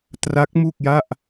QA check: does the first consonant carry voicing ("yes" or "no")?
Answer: no